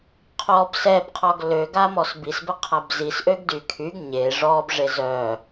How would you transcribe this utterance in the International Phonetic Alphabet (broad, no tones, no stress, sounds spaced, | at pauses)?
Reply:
qʰ ɔ b s ɛ b qʰ ɔ ɡ l ø ɡ a m ɔ s b i s b ə qʰ a b z i s ʔ ø ɡ d y kʰ y ɡ ɲ e ʐ ɔ b ʐ e z œ